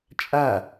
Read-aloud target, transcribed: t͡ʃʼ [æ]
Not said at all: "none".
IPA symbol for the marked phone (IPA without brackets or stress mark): a